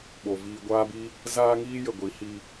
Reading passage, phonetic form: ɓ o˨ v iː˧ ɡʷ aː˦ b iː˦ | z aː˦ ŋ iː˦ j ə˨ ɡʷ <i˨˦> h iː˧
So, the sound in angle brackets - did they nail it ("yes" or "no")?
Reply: yes